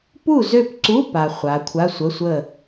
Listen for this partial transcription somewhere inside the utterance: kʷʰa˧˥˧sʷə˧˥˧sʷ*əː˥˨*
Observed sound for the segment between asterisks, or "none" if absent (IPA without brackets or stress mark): ə˥˨